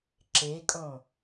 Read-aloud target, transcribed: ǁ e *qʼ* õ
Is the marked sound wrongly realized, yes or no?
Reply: yes